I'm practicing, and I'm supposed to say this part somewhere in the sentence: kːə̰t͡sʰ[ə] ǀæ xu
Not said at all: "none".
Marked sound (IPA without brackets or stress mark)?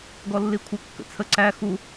ə